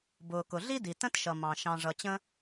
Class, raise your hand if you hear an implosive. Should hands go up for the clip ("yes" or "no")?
no